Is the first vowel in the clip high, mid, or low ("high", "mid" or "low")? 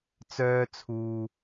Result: mid